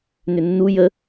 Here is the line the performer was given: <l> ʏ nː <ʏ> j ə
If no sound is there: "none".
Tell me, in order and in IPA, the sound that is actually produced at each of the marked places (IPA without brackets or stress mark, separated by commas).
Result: n, u